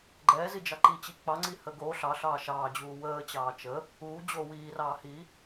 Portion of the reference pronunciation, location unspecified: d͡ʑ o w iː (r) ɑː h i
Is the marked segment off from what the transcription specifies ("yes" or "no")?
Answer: no